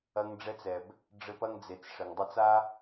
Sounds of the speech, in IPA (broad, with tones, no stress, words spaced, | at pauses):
ɐ˧ŋ ɖ͡ʐɛ˧t͡sɛ˨b | ɖ͡ʐɘ˧pɐ˧ŋd͡ze˨t͡s ʂɘ˨ŋdˤɛ˧t͡sa˦